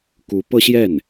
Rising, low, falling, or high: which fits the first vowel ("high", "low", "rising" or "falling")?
rising